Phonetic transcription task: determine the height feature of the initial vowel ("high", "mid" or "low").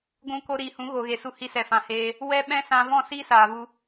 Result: high